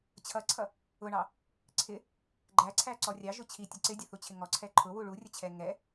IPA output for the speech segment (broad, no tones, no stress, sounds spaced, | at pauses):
t͡ɕʰ ʌ ǀʰ ʌ | ʊ ɳ ɑ | ǀʰ ɪ | ɡ͡ǃ æ ǀʰ æ ǀ ɔ rʲ ɑ ʒ ʊ t͡ɕʰ i tʲ ʌ ǀ ɪ dʲ ə θ u t͡ɕʰ ɪ ŋ ɔ ǀʰ ɛ ǃʰ ʊ w u ɭ u rʲ ə t͡ɕʰ ɛ ŋ ɛ